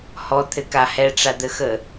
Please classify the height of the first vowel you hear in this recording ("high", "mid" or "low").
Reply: mid